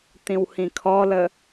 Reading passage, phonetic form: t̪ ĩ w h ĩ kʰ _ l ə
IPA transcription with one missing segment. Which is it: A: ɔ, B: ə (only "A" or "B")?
A